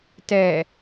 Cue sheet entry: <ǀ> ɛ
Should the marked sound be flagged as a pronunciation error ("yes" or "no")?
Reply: yes